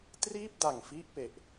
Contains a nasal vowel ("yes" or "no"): no